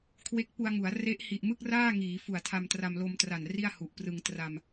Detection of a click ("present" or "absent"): absent